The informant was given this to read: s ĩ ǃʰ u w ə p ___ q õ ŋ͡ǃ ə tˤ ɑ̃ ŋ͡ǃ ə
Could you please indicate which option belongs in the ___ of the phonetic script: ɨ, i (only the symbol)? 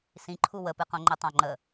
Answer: ɨ